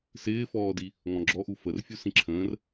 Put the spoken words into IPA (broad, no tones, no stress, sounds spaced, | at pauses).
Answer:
s ɪː f ɔː d i | ŋ ɔ̃ ɡ͡ǁ ɔ ʔ u f ə r fʲ u s ĩ ǁʰ ə̃ː r